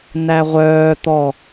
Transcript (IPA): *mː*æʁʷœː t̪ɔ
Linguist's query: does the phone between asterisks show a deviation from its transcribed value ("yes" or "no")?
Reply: yes